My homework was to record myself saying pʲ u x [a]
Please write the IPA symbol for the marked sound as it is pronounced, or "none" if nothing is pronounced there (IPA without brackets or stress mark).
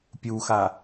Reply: a